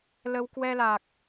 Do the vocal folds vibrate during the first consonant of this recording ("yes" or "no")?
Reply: yes